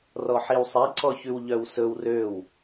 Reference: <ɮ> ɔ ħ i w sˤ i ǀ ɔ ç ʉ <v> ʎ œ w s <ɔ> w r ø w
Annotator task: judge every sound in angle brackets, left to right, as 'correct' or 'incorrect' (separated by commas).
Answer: incorrect, incorrect, incorrect